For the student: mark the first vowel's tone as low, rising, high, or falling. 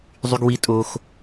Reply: high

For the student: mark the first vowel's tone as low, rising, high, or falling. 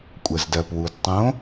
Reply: low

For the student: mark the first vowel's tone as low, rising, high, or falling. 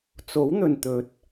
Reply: rising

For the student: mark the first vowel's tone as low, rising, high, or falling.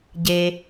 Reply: low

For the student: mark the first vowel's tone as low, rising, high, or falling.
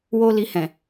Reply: high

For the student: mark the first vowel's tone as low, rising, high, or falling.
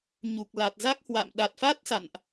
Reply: low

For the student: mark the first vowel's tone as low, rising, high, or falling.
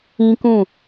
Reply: high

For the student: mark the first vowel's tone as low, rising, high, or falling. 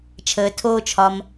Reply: low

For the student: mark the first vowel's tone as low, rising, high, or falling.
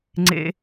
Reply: high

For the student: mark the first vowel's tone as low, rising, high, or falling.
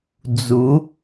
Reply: rising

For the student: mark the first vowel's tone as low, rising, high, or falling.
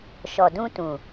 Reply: low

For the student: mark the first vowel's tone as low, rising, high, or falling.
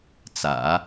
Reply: low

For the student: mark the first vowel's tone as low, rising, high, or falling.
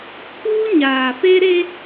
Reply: high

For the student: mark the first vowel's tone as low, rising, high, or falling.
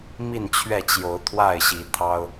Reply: falling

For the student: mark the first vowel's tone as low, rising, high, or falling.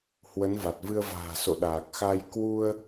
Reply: rising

